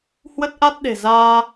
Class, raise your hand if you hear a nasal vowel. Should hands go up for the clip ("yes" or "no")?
no